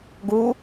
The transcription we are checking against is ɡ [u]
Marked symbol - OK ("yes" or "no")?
yes